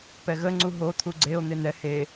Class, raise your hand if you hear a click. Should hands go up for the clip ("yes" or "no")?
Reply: yes